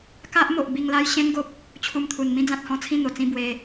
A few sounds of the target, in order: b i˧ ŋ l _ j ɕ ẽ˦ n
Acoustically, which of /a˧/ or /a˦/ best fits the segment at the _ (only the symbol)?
a˦